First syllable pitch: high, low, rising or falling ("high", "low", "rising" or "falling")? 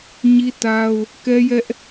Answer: high